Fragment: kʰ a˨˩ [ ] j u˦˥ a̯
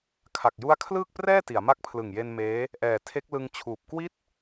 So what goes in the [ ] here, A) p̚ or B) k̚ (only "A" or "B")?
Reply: B